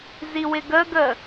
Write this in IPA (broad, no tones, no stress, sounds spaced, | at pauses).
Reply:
z i w ɪ ɡ ə ɡ ə